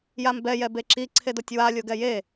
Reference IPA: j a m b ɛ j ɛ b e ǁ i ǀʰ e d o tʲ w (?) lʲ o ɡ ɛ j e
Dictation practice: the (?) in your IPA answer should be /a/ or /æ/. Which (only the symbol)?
a